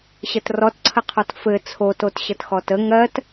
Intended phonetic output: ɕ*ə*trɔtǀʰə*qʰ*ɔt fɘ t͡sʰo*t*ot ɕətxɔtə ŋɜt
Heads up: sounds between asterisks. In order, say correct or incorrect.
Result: correct, correct, correct

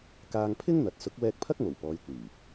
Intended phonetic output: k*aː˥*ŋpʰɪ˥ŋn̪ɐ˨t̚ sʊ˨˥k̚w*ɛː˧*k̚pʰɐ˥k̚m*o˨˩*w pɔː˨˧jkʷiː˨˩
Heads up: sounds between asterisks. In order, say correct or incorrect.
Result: incorrect: aː˧, correct, correct

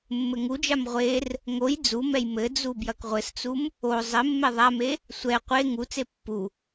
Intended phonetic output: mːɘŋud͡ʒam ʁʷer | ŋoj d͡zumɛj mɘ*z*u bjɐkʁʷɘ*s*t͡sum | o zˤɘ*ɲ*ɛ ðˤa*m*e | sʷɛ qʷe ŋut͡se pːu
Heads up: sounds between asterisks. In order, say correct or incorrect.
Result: incorrect: d͡z, correct, incorrect: mː, correct

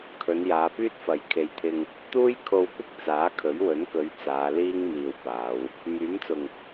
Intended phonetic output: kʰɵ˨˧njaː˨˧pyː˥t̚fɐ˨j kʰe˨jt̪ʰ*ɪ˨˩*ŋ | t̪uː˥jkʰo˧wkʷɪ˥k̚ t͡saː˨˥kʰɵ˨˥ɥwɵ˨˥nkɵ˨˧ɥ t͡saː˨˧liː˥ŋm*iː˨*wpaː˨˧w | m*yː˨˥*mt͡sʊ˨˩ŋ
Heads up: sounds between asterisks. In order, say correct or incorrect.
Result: incorrect: ɪ˧, correct, correct

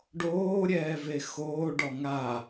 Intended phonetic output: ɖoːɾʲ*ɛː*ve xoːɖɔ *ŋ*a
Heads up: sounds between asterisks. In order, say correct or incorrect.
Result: correct, correct

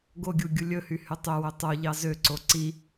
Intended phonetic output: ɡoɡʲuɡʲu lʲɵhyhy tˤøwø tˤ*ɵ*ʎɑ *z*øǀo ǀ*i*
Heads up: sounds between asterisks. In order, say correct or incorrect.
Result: incorrect: o, correct, correct

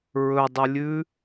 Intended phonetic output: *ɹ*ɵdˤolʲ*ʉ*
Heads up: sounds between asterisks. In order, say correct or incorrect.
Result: correct, correct

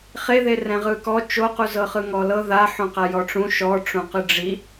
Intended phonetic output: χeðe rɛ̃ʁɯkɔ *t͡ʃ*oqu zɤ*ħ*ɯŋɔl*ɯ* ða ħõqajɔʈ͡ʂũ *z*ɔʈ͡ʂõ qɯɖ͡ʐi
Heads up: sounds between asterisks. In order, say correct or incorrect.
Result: correct, incorrect: χ, incorrect: ɤ, incorrect: ʃ

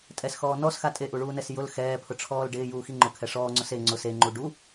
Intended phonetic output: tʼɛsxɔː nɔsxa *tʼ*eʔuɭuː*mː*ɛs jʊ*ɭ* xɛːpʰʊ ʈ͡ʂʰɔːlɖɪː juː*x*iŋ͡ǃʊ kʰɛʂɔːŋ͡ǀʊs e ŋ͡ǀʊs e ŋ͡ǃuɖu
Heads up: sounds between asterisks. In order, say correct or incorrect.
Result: correct, incorrect: n, incorrect: l, correct

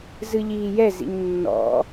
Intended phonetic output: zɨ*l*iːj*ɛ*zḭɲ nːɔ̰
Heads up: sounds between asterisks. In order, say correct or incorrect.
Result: incorrect: ʎ, correct

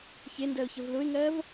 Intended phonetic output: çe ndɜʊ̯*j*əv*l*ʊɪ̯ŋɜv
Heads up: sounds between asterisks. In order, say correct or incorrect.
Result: incorrect: ç, correct

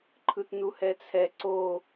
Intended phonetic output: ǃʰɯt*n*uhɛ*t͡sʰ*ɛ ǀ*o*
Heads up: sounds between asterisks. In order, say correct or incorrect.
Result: correct, correct, correct

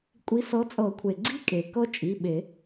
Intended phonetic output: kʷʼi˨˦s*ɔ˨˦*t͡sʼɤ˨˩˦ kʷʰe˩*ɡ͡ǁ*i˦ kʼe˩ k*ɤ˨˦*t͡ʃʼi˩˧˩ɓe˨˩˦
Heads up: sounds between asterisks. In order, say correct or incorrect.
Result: incorrect: ɤ˨˦, incorrect: ɡ͡ǀ, incorrect: ɤ˦

